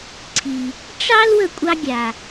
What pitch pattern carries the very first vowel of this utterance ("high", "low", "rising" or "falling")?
low